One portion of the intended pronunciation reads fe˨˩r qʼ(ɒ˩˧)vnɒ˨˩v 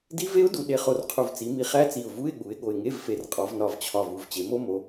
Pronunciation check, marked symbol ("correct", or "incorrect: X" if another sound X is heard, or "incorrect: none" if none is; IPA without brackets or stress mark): correct